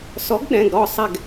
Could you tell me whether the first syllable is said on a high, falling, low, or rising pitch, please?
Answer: rising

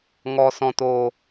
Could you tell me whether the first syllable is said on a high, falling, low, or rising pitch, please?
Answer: low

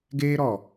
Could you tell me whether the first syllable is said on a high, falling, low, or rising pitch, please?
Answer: high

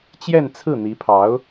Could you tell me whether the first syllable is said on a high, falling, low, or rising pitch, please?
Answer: falling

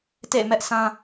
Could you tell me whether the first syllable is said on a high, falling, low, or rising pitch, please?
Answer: falling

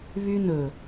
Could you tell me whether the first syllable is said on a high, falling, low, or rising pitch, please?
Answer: high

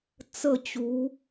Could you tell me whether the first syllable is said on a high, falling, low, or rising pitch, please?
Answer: falling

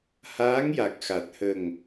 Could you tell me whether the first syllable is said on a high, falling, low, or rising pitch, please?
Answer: rising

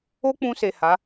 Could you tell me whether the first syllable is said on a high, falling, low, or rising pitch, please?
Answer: high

